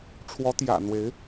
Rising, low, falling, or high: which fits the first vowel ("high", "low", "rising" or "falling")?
rising